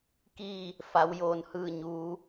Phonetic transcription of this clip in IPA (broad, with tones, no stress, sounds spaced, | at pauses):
k iː˥˨ | f a˩˧ w j oː˩ n h ɯː˧˩ ɲ uː˩˧